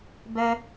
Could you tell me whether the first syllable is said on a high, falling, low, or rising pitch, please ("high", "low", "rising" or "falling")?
high